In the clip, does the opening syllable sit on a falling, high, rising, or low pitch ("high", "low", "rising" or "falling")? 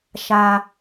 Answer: low